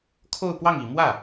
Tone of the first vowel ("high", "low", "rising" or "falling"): falling